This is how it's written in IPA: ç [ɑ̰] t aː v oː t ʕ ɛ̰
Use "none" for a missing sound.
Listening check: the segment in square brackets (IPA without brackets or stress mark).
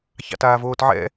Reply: ɑ̰